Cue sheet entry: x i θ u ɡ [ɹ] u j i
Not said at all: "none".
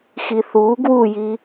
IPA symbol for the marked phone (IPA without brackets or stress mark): w